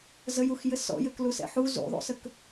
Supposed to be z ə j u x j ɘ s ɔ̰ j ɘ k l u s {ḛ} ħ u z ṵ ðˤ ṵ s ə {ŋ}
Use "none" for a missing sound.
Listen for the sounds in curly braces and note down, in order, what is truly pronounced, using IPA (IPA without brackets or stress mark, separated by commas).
ɛ̰, k